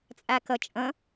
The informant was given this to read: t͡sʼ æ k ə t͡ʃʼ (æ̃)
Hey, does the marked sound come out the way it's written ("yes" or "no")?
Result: no